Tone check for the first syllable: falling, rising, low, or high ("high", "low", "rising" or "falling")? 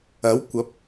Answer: rising